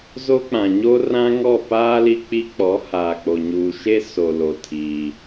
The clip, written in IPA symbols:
z o˦ k͡p ã˨ ɲ o˦ r ã˦ ŋ ɔ˦˨ p aː˦ l i˦ k͡p i˦ k͡p ɔ˨˦ h aː˨ k͡p o˨ ɲ uː˨ ʃ e˦ s o˨ l o˨ tʰ i˦

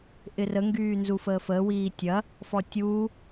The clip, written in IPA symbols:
ʔ ɪ r ə ŋ ɡ yː n z u f əː f əː w iː tʲ ɐ | f ɔ tʲ uː

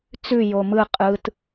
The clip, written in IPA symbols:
t͡s ʉ j o m ɯ qʼ ɯ t

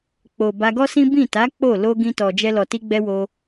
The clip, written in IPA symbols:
k͡p o˨ b a˧ ɡ ɔ˦ s ĩ˦ b ĩ˦˨ t a˨˦ k͡p o˦˨ l o˧ ɡ ĩ˧ t ɔ˨ d͡ʒ ɛ˧ l ɔ˨ t i˧ ɡ͡b ɛ˧ w o˧

